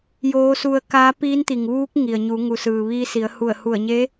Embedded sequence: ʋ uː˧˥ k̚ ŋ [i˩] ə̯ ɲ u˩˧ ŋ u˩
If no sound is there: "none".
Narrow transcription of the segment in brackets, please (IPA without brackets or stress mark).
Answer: i˩